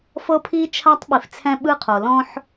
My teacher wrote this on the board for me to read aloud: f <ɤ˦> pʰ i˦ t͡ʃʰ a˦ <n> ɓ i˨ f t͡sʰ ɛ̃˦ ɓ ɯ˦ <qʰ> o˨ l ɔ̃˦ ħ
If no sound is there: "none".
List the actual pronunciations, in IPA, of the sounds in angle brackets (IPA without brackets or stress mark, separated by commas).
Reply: ɤ˦, tˤ, qʰ